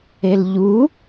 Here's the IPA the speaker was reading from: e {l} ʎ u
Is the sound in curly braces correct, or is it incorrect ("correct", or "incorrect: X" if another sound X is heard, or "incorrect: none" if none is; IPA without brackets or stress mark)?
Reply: correct